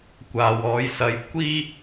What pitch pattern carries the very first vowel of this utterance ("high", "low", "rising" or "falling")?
low